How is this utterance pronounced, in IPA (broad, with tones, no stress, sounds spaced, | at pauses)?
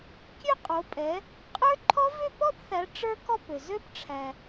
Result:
kʲ ø˥˧ qʼ o˨˦ pʼ ɛ˨˦ | qʼ ə˞˦˥ ǃʰ ɔ˦˥ v ø˥˧ p ɔ˥˧ p θ æ˨˦ ʈ͡ʂ ə˞˦˥ k ɔ˥˧ p ø˨ z ø˦˥ p ʈ͡ʂʰ æ˨